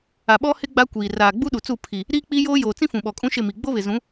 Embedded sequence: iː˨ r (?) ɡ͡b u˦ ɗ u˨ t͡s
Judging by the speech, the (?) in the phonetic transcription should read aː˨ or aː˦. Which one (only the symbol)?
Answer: aː˨